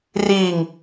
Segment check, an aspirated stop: absent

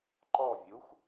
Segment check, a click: present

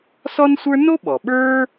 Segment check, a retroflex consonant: absent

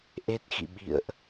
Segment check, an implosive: present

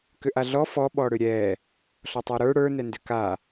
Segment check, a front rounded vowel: present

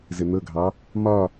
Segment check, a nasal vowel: absent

